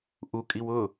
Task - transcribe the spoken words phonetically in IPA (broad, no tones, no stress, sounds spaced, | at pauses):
ʔ u kʼ i w ʊ